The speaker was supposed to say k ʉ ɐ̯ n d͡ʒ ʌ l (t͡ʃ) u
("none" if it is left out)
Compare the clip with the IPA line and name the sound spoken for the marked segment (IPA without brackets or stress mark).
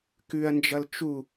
t͡ʃ